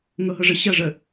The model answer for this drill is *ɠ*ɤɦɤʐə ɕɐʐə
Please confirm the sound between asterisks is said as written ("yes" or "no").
no